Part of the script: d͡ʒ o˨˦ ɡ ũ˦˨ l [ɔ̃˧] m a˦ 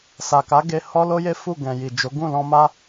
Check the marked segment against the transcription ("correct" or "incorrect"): correct